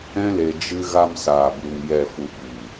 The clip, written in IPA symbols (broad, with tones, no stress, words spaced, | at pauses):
ɛ̃˦le˧ d͡ʒɨ˧ ɣa˧msaː˨bu˨ŋ jɛ˨ fu˨ɓiː˨